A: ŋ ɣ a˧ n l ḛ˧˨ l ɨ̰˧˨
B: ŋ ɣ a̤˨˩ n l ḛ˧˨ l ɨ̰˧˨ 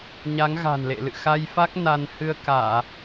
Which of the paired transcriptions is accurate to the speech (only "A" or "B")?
B